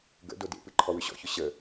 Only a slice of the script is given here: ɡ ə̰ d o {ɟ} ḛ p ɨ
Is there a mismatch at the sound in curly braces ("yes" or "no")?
yes